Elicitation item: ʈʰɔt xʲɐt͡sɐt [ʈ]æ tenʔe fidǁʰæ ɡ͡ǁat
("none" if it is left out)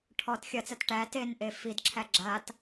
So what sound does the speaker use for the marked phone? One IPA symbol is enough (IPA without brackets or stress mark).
ʈ